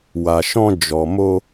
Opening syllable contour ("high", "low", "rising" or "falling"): low